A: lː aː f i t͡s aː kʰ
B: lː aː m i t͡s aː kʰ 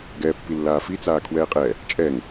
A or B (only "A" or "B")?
A